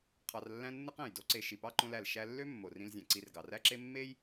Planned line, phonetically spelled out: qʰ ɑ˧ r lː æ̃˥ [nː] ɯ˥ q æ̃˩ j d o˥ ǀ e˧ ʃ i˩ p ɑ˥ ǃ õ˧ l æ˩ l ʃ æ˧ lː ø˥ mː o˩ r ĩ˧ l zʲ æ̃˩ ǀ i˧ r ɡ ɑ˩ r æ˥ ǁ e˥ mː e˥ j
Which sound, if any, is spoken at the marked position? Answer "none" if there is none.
nː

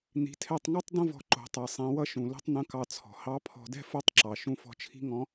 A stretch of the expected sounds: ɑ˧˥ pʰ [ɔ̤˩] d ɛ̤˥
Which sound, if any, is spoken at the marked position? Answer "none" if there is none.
ɔ̤˧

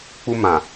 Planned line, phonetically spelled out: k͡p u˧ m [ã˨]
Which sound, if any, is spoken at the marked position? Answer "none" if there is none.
ã˨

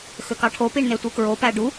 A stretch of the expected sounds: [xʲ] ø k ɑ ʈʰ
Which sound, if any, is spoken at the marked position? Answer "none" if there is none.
x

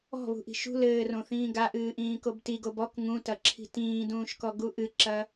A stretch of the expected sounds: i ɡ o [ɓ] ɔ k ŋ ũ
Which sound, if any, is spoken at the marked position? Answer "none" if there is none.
b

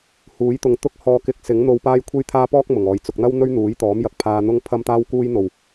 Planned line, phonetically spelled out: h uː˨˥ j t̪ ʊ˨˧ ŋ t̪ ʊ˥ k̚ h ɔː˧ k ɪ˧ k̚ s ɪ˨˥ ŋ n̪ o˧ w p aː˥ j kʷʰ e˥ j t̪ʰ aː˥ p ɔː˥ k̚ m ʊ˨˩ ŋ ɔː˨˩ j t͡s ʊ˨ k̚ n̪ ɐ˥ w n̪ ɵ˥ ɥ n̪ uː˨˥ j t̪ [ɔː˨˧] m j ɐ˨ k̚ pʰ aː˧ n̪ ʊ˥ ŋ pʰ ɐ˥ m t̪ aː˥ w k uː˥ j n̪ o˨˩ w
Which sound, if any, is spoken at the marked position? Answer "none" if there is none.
ɔː˨˥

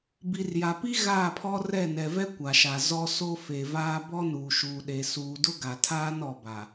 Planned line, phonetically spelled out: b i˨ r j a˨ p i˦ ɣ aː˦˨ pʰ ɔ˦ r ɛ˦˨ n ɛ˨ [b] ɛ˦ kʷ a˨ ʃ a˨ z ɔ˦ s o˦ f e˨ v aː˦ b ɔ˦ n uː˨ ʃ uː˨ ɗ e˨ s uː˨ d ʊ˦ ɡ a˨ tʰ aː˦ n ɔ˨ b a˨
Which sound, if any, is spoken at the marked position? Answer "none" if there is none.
v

